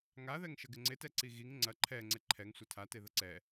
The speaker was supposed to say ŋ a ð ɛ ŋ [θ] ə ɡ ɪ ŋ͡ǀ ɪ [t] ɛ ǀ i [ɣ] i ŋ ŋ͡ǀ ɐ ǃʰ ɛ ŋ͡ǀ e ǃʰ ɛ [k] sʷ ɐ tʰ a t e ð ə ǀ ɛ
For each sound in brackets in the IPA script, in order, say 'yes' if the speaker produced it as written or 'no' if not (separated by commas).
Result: no, yes, yes, no